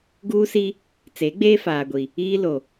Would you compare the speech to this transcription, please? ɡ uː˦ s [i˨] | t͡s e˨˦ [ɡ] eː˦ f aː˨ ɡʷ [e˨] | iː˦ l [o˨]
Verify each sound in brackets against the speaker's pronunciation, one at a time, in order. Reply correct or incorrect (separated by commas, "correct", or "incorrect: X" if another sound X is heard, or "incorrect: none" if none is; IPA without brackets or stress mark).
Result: incorrect: i˦, incorrect: ɡ͡b, incorrect: i˨, correct